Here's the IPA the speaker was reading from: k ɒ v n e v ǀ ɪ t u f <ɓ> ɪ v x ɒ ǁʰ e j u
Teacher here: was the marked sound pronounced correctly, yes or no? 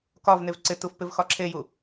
no